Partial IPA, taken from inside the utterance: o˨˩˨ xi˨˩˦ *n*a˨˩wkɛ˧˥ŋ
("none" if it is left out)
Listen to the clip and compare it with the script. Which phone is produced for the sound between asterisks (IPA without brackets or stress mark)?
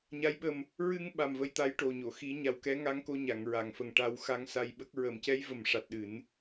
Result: ɲ